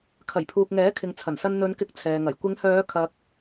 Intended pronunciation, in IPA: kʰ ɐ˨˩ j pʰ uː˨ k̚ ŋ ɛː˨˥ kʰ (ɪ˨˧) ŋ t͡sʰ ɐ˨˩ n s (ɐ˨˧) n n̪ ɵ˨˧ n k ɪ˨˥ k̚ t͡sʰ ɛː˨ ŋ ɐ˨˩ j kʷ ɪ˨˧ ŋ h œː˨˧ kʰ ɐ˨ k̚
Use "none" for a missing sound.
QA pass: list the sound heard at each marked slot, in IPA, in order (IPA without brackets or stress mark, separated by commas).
ɪ˨, ɐ˧